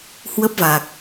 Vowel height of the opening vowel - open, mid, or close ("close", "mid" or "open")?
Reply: mid